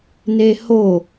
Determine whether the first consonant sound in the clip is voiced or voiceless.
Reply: voiced